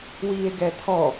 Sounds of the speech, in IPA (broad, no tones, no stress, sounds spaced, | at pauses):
w iː e̯ ɡ ɛ t̪ʰ ɔ